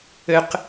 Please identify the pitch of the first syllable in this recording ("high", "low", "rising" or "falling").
high